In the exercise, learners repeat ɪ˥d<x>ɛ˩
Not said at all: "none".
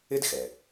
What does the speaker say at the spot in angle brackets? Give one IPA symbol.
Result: x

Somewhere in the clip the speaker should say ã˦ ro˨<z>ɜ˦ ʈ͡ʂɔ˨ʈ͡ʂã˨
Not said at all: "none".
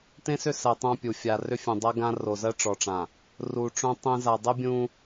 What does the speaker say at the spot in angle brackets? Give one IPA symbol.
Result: z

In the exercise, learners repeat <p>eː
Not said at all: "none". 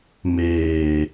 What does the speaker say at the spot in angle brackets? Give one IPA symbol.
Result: m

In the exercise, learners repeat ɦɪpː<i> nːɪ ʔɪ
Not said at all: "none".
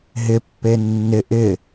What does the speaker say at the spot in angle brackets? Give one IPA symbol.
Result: e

